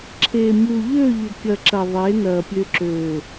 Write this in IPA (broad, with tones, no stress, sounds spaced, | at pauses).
ǁʰ eː˨ mʲ u˨ ʎ ø˦˨ ʎ ɘ˨ kʲ ɐ˨ ǁ ɐ˨ ðˤ e˨˦ n ɐː˨ pʲ ø˨ ǁ ø˨